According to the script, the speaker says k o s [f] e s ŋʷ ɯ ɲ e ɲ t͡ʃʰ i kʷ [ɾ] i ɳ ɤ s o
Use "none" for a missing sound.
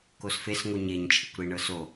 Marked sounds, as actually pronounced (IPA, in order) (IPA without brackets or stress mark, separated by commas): f, ɾ